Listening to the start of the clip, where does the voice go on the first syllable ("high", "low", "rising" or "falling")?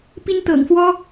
high